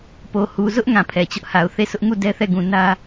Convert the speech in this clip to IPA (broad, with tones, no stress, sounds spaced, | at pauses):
p o˨ h u˨ z ʊ˦ ʔ ŋ ã˨ pʰ ɛ˨ t͡ɕ ʊ˦ ʔ h a˨ ʊ̯ θ e˦˨ s ʊ˦ ʔ ŋ u˦˨ d ɛ˦ θ ɛ˦˨ ɡ ũ˨ n ä˦